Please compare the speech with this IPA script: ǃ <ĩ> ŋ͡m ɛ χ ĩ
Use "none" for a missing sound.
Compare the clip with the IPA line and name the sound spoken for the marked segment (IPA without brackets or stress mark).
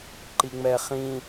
i